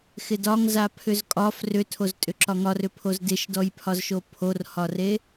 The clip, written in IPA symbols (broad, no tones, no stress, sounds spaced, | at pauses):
x ɪ d ɒ ŋ z a pʰ ʏ z kʼ ɒ f r ʏ tʰ o z tʼ ʏ ǁ ɒ ŋ ɒ r ʏ pʰ o z d ɪ ʃ d ɔ j pʰ ɒ z ʃ o pʰ o r h ɒ r e